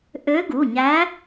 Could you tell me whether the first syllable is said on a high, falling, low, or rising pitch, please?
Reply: rising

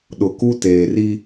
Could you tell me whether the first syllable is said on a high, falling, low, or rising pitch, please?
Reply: low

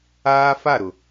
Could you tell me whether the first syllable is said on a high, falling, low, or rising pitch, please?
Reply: high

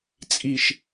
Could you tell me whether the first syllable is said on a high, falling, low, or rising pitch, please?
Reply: low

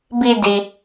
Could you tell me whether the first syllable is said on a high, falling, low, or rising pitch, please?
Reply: low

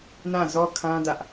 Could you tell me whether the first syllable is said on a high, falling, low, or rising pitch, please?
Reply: falling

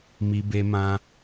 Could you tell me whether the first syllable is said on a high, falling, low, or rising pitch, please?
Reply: high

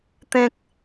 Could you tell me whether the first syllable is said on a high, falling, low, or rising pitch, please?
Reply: high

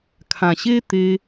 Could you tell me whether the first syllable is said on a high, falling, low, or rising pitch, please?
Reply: low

